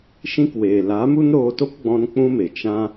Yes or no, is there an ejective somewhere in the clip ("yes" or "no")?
no